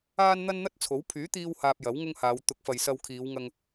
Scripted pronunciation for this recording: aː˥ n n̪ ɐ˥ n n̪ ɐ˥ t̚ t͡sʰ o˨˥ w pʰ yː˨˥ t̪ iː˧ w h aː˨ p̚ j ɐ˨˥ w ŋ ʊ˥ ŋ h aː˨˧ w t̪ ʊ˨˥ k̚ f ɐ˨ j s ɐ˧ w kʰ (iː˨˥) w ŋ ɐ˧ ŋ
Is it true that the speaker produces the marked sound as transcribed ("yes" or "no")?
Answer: no